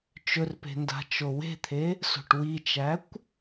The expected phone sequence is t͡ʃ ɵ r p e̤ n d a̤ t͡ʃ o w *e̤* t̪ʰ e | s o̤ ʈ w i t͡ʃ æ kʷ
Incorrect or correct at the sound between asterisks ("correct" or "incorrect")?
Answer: correct